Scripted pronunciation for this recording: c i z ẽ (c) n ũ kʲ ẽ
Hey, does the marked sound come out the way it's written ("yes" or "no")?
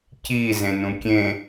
no